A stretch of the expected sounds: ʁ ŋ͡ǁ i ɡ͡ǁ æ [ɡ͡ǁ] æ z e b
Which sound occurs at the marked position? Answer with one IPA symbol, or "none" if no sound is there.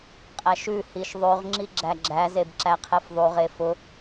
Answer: ɡ͡ǁ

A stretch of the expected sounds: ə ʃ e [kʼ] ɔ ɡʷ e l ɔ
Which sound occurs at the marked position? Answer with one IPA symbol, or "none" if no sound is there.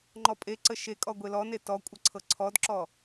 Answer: kʼ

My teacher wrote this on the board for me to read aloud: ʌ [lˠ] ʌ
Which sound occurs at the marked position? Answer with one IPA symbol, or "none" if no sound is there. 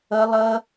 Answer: lˠ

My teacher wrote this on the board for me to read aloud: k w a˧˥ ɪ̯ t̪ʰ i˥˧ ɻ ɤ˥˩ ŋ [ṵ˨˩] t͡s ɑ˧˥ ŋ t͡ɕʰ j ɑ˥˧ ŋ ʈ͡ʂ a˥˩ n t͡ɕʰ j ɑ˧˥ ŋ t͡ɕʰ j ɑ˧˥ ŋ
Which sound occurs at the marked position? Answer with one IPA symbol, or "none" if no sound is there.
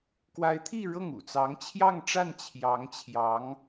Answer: ṵ˨˩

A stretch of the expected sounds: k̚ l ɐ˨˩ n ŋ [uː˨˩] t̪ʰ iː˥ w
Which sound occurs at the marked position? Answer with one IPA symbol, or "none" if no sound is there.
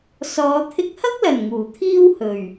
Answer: uː˨˩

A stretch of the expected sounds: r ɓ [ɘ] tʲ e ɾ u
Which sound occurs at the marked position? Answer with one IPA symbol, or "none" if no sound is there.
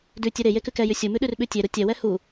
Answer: ʉ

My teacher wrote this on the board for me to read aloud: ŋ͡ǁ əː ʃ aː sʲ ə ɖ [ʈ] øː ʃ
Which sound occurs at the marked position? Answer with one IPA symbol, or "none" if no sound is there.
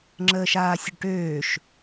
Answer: ʈ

